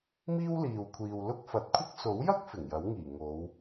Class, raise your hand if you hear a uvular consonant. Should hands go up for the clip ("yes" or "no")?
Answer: no